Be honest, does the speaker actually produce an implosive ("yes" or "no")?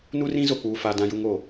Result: no